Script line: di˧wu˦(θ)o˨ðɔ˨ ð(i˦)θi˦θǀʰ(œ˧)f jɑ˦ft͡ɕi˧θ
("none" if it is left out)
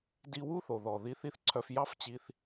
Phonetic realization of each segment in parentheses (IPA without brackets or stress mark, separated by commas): θ, i˧, œ˧